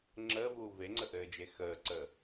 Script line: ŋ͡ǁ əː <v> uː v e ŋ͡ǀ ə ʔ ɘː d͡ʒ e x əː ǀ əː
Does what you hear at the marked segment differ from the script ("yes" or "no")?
no